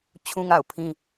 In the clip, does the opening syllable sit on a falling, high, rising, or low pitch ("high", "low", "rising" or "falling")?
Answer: high